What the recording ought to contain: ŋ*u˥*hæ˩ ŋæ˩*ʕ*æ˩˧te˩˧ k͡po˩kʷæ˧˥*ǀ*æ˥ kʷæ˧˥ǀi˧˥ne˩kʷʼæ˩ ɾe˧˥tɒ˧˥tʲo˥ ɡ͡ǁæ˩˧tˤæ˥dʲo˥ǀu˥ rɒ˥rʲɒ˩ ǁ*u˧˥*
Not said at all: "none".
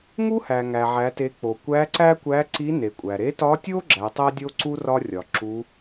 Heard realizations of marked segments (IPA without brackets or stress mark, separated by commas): u˥, ʕ, ǀ, u˧˥